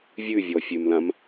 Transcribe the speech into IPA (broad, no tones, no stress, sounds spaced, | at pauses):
vʲ ʉ vʲ ɔ fʲ ʉ m l ã m